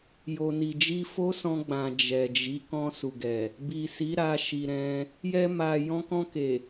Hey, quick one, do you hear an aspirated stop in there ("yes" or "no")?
no